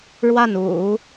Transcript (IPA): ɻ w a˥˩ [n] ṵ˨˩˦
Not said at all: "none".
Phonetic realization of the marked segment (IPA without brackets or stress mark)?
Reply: n